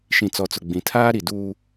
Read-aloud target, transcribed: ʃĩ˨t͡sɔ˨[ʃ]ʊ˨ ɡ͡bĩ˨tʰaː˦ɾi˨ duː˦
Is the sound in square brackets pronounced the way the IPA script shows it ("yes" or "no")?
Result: no